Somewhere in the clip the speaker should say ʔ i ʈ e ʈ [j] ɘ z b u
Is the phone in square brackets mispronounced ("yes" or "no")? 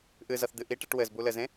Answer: yes